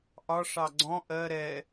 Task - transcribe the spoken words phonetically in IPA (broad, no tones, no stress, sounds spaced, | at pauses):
ʔ ɒ ʂ ɑ ɡ͡ǀ ɔ̃ ʔ ɜ ɾ ɛ